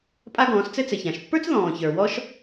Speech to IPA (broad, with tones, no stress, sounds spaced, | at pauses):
pʼ a˥ ɡ ɔ̃ː˩˥ s t͡s ɘ˥ t͡s ɘ˩ ç ã˩ ʃ pː ə˞˥ t͡s ð ɔ̃ː˩ ç ə˞˩ w ɔ˥ ʃ